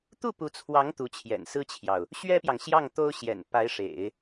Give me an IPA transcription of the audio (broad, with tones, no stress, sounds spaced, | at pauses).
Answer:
t̪ u˥˩ p u˧˥ t͡sʰ w ɑ˧˥ ŋ t̪ u˧˥ t͡ɕʰ j ɛ̰˨˩ n s ɹ̩˥ t͡ɕʰ j ɑ˨ ʊ̯ | ɕ ɥ ɛ˥ p j ɑ˨ ŋ ɕ j ɑ˥˩ ŋ t̪ o˥ ʊ̯ ɕ j ɛ̰˨˩ n p a˧˥ ɪ̯ ʂ ḛ˨˩˦ ɪ̯